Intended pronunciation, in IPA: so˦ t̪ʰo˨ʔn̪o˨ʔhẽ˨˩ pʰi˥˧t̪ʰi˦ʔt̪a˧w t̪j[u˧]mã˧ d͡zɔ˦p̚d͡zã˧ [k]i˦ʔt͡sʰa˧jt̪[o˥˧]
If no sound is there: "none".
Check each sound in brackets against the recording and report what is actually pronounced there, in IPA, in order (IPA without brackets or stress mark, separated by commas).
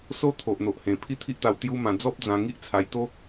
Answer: u˦, ŋ, o˦